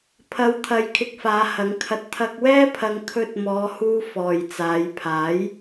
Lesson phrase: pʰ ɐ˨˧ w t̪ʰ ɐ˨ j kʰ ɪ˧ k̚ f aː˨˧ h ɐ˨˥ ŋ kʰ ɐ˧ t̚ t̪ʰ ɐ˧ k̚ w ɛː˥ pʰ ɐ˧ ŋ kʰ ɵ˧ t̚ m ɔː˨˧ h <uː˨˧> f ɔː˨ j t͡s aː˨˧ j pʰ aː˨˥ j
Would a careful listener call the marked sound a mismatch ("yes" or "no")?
yes